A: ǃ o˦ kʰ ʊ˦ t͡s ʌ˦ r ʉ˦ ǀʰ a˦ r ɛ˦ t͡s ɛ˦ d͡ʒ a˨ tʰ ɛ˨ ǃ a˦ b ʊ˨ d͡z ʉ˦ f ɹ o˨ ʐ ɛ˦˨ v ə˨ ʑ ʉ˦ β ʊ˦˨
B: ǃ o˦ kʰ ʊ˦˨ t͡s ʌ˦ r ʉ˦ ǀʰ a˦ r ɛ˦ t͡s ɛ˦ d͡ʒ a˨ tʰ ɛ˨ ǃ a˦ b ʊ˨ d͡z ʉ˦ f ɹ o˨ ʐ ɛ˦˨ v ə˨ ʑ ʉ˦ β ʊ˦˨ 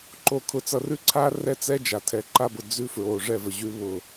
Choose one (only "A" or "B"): A